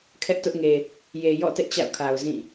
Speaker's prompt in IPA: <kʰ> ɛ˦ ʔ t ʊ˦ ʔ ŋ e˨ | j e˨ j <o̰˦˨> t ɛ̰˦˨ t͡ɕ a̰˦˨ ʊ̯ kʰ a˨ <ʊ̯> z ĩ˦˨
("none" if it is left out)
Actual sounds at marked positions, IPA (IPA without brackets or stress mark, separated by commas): kʰ, ɔ̰˦˨, ʊ̯